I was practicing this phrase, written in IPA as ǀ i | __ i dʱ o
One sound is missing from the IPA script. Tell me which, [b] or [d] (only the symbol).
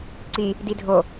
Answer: d